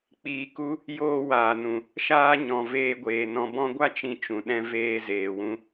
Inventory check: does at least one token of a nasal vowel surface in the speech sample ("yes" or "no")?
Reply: yes